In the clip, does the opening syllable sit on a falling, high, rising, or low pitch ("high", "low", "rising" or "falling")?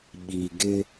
low